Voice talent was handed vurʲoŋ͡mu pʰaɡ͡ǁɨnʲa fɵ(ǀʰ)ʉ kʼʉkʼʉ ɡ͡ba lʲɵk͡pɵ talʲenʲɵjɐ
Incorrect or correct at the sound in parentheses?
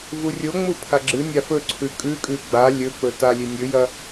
correct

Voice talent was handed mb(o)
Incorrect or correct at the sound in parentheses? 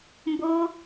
correct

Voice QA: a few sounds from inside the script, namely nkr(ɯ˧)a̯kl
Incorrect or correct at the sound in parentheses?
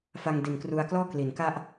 incorrect: u˧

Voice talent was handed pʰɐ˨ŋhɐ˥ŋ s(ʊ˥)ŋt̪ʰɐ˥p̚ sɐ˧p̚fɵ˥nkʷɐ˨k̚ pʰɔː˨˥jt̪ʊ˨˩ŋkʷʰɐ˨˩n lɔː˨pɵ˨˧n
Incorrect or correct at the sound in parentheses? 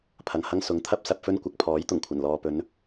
incorrect: ʊ˨˥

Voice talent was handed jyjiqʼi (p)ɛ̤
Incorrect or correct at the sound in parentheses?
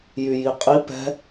correct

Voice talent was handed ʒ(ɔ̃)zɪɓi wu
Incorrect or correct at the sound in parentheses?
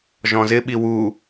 correct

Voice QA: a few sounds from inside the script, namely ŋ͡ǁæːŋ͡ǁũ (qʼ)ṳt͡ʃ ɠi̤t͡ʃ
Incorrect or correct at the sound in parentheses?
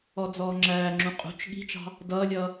correct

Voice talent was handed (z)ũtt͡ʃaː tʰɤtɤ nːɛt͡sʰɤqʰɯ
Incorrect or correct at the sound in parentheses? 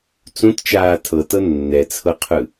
incorrect: t͡s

